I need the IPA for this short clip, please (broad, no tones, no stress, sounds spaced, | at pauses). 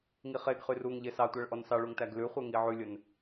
ŋ i χ e ɡ χ y r u ŋ ʎ e s ɑ tʷ æ ɭ ʔ ɔ n s ɑ ɭ u ŋ t æ ɡ l ʉ χʷ e ŋ i ʕ ʉ lʲ ɵ n